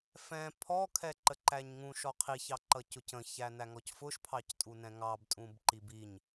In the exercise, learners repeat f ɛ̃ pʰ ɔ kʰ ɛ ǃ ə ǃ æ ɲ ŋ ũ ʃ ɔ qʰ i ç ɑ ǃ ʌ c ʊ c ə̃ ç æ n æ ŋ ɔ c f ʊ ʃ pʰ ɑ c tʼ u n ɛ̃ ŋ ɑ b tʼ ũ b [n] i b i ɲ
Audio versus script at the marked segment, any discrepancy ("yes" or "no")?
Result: yes